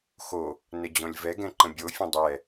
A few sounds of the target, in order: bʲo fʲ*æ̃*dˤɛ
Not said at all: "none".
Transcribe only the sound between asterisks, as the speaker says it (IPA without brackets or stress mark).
ɛ̃